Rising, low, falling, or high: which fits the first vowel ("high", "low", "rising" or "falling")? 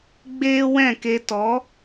high